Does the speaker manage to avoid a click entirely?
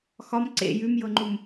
no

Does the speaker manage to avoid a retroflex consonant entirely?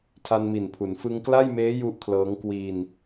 yes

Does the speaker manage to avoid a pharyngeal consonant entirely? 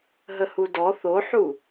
no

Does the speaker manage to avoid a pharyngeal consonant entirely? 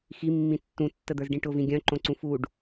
yes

